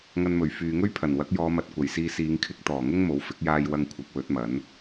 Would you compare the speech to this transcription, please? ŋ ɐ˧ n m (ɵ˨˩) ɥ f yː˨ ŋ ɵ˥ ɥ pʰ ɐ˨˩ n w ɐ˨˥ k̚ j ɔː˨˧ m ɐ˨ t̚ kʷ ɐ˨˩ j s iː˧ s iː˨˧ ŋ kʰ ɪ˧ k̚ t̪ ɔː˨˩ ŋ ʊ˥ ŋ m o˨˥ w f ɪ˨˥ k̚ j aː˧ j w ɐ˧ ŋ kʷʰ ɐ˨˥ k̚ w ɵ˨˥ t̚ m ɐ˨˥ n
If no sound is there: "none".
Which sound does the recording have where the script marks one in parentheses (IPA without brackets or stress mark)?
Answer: ɵ˨˩